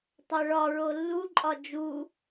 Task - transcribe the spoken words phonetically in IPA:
tˤ æ ɭ ɒ ɹ o lː u ǃʼ ɒ d͡ʒ u

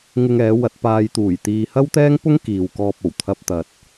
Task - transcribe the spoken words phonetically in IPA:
ŋ ɪ˧ ŋ ɛː˨˧ w ɐ˧ t̚ p aː˧ j t̪ uː˨˩ j t̪ iː˧ h ɐ˥ w t̪ ɛː˥ ŋ p ʊ˥ ŋ k iː˨ w k ɔː˧ p̚ o˨˩ w t̪ʰ ɐ˧ p̚ t̪ ɐ˨ t̚

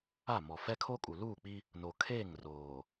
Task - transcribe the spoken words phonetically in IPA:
a˦˨ m ɔ˨ f ɛ˦ kʰ o˦ kʼ u˨ l uː˦˨ k͡p i˦ | n o˨ kʰ eː˦˨ ŋ r oː˨

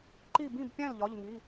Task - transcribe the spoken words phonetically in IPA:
ǃ i˥˨ b ĩ˥˨ b pʲ æ̃˥˨ l ʎ ɒ˧˥˧ ʎ ŋ i˧˥˧

